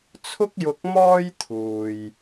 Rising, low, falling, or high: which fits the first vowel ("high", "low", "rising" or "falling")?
high